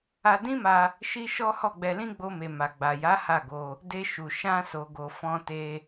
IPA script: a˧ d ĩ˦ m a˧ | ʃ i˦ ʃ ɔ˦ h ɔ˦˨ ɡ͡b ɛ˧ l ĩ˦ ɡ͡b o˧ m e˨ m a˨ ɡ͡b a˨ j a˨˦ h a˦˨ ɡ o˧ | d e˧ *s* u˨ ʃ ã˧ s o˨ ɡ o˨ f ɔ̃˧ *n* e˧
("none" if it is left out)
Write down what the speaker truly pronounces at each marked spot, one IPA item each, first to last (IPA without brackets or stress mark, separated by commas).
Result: ʃ, t